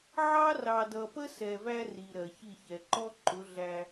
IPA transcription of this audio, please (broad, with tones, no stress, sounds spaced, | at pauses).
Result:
ʕ ɑ˦ r ɑ˨ d ʌ˨ p ə˦ s ɛ˨ v æ˦ r i˨ ɾ ɜ˨ ç i˦˨ ç ɛ˨ ǃ ɔ˦ ǃ ʊ˨˦ ɮ æ˦